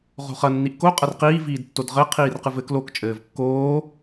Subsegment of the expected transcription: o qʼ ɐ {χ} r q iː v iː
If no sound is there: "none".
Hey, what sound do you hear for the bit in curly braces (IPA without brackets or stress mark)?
none